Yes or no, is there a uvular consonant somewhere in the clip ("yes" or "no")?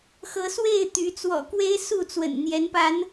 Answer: no